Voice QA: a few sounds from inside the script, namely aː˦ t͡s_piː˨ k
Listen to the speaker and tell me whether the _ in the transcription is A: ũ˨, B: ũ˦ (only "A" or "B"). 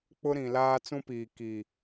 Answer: B